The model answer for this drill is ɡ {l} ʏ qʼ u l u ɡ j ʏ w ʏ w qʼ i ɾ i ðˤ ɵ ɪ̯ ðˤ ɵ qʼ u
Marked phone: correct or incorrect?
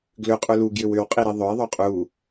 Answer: correct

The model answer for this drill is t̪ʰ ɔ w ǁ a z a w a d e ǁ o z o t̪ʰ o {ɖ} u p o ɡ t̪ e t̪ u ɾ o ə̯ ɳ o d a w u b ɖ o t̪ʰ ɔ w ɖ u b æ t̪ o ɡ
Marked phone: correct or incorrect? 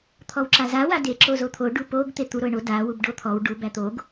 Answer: correct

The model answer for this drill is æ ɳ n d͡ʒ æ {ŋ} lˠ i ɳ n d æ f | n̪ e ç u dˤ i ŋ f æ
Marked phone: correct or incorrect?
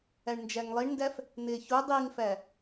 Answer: correct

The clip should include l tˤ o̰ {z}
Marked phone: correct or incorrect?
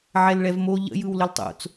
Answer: incorrect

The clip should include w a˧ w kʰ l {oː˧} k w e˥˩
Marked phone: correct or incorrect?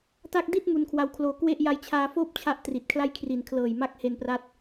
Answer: correct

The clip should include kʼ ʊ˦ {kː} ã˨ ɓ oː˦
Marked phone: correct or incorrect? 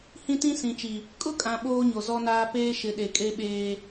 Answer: incorrect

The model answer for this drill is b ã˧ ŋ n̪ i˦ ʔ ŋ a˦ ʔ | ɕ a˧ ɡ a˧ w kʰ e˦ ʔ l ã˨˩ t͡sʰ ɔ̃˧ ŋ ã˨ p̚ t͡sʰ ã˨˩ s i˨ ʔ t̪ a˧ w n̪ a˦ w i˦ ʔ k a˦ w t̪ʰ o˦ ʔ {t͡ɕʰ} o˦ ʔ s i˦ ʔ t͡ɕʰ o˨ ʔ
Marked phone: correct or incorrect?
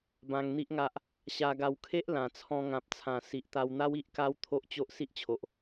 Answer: incorrect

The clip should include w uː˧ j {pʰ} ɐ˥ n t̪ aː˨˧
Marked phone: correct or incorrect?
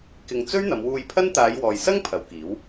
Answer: correct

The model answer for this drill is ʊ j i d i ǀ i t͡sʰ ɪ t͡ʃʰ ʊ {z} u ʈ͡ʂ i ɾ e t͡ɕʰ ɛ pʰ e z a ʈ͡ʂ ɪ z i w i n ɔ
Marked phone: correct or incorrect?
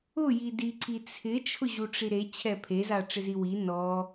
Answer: incorrect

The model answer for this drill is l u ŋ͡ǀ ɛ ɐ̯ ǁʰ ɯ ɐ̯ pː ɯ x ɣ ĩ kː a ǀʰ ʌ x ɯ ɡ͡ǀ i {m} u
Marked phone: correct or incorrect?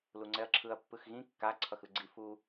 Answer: incorrect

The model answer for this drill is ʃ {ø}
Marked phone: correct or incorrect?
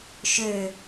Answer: correct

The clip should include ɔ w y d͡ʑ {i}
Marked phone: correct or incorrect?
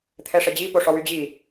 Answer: correct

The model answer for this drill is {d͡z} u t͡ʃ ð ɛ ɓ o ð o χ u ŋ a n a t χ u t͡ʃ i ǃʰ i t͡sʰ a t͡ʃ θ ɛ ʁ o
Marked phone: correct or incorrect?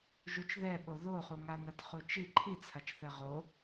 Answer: incorrect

